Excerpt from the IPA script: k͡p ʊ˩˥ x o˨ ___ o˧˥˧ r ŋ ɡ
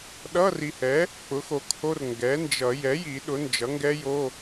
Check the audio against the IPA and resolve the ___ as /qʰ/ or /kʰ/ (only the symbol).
kʰ